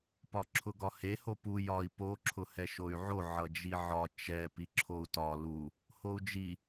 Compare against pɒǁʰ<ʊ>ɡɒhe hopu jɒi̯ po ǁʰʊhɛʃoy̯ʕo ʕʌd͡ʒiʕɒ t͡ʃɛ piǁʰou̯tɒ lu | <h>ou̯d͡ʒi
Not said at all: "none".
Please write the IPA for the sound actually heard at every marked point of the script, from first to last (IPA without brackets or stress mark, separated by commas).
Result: ʊ, h